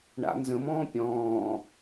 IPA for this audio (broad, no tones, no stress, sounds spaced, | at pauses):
ɳ a̰ n z ə̃ m ɔ̃ː pʲ ɔ̃ː